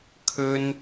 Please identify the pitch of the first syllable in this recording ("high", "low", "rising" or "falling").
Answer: high